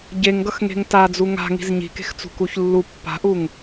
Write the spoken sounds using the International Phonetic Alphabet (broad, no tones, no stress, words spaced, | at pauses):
ɟeŋɡʌxŋe̤ŋ tad͡zu ŋa̤ŋi̤z ɲi̤ke̤xt͡sṳ kuçlːu pːa̤ʔuŋ